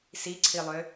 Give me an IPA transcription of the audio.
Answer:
s i ǀʰ i lˠ ø

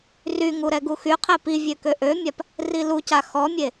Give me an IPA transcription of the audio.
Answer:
r y ŋ u ɾ ɛ ɡ u x y qʰ e p i vʲ ø k ø ʔ ø mʲ a p | r i l u c a x ɔ mʲ e

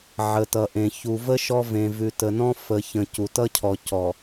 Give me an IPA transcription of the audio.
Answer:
ʕ ə˨ t ʌ˨ ʔ ẽ˨ ç u˨ v ə˦ ʃ ɔ˦ v ẽ˨ v ʉ˨ t ə˨ n ɔ̃˦ f ə˨ ç ə̃˨ c u˨ t ʌ˦ cʰ ɔ˨ c ɔ˨

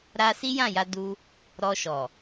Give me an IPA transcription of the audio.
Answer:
ɾ a˧ s i˦ j ã˦˨ j a˧ d u˧ | ɾ ɔ˧ ʃ ɔ˨

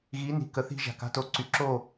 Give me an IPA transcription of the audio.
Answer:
ɣ i˨˦ n i̤˨ k ə˨ θ i̤˧ ʒ a̤˨ k a̤˦ t o˨ ǀ y˨ ǁ o˦˨

